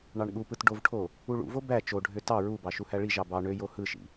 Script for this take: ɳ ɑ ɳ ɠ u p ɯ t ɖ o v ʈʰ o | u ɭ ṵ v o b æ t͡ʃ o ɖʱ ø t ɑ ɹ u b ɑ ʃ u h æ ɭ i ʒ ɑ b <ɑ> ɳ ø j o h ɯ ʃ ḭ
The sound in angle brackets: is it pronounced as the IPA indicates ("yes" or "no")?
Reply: yes